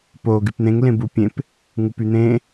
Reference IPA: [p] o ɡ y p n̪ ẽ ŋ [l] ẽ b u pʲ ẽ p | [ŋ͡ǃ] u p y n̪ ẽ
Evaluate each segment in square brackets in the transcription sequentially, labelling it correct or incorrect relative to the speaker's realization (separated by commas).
correct, correct, incorrect